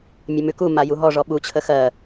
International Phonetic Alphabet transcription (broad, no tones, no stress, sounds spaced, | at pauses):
mʲ ə m ʉ k u m a j u ɦ ɔ ʐ ɔ ɓ u t͡ɕʰ ə x ɜ